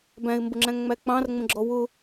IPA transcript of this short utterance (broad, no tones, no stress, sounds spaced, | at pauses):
b æ̃ ɪ̯ m b ʊ ŋ͡ǁ æ̃ ŋ ŋ͡m æ k͡p ɑ̃ r ŋ͡m ə̃ ɡ͡ǁ ɔ w ʊ